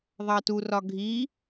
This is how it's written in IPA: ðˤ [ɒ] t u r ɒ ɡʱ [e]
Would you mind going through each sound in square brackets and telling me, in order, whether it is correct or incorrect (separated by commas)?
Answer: incorrect, incorrect